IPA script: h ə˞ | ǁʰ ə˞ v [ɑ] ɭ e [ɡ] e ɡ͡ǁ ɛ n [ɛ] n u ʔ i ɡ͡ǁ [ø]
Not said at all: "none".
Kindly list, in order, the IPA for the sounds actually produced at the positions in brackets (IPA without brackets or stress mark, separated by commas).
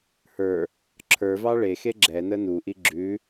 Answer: ɑ, x, ə, ʉ